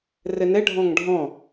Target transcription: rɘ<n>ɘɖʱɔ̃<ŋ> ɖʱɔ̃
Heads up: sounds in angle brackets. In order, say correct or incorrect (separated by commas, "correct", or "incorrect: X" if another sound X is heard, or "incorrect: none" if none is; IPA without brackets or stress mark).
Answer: correct, correct